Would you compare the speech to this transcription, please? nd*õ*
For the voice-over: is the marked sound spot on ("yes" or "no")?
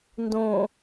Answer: yes